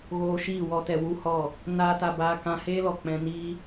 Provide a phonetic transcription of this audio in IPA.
ɣ oː˧ ʃ iː˦˨ w ɔ˧ t ɛ˨ w u˦ h ɔ˦˨ | n aː˦ t a˧ b aː˧ k ã˧ h eː˦ l ɔ˨ k͡p ɛ̃˧ n iː˦

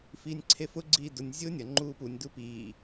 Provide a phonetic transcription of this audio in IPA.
f iː nʲ ǀʰ e f ʊ ɡ͡ǀ iː d ʊ nʲ zʲ ʊː nʲ ɐ ŋ͡ǃ uː p u nʲ d u p iː

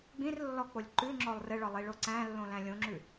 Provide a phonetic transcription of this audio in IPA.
ɡ͡b ĩ r lː ɔ k͡p o lʲ ǃ ʉ ŋ͡ǁ ɔ lˠ r ɘ ɭ ɒ lˠ i ɭ o ǀ æ̃ lː õ l æ̃ lʲ õ ŋ͡ǁ ʉ

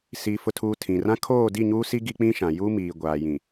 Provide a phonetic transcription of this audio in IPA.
s iː˨ f ʊ˨ tʰ uː˨ tʰ ĩ˨ r ã˦ kʰ oː˦˨ d i˦˨ ɲ uː˦ s i˦ ɡ i˦ k͡p ĩ˦ ʃ ã˨ j u˦ m iː˨ ɡʷ aː˨ j ĩ˨

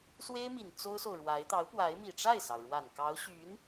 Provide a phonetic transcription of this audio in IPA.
s w e˥ ɪ̯ m i˨˩ n t͡s o˥ ʊ̯ s o˨ ʊ̯ ɻ w a˧˥ ɪ̯ t̪ ɑ˧˥ ʊ̯ p w a˧˥ ɪ̯ m i˨˩ ʈ͡ʂ a˥˩ ɪ̯ s ɑ˩ ʊ̯ ɻ w a˨˩ n k ɑ˧˥ ʊ̯ ɕ y˧˥ n

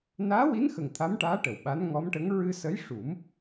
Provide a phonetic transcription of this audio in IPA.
n aː˧˥ w i˧˥ n x ə˨˩ ŋ t̪ʰ a˧˥ m ʈ aː˧˥ ʈ ə˨˩ w ɓ a˧˥ n ŋ ɔ˧˥ m ʈ ə˧˥ ŋ ɹ ɨ˧ s ə˧˥ j ʂ u˨˩˦ m

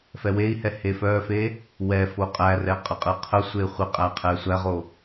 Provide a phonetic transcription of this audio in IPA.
f ɛ w e i̯ h ɛ h e f œ f e | w ɛ f o qʼ æ r ɛ qʼ ə qʼ ɘ qʰ ə sʷ e χʷ ɪ qʼ æ qʰ ɛ sʷ æ ʁ o

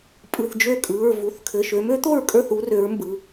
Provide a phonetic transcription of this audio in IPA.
pʼ ɯ˩˧˩ θ d͡ʒ ø˥˨ kʼ ɯ˩˧˩ ɹ v u˩˧˩ θ kʰ ɘ˩˧˩ ʃ ø˨˥ m ø˨˥ t̪ o˥˨ ɹ kʼ ə˞˥˨ θ u˨˥ r ø˨˥ ɹ m b ɯ˩˧˩

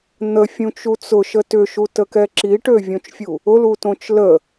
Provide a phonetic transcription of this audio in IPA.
n̪ ə fʲ ũ t͡ʃ u t͡s ʊ ʃ ə t ʏ ʃ u t ə k ɛ ǁ i ʈ ø vʲ õ t͡ʃ fʲ u | ʊ l u t õ t͡ʃ l ə

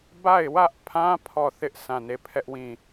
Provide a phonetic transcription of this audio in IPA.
b a˦˨ ɪ̯ w ä˦ ʔ pʰ ã˦ pʰ ɔ˦˨ θ ɪ˦ ʔ sʰ ã˦˨ n e˦˨ pʰ ɛ˦ ʔ w ĩ˦˨

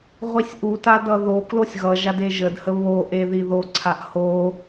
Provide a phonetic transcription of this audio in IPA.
ʁʷ i sʲ ʔ u t a d ʌ ð o k l o sʲ ɣ ʌ ʒ a d e ʒ ə d h ə β o ʔ e ð i ð o ǀʰ a ʔ h o

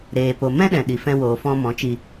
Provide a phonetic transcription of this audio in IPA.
ɾ eː˨ p o˨ m ɛ̃˦ ɗ ɛ̃˨ ɗ i˨ f ɛ̃˧ w oː˨ f ɔ̃˧ m ɔ̃˨˦ t͡ʃ i˧

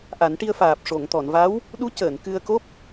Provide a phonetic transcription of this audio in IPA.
ʔ a˨˩˦ n ʈ i˧ ə̯ f aː˨˩ p̚ ʂ o˨˩˨ ŋ t̪ ɔ˨˩˨ n v a˧˥ w | ɗ u˧˥ c əː˨˩˨ n k ɨ˧ ə̯ k o˦˥ p̚

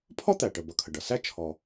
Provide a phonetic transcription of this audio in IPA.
pʰ ɔ˥ t̪ æ˩ ʈ ə˩ b ʌ˩ kʰ ə˩ ɖ ʌ˩ s æ˥ t͡ʃʰ ɔ˩

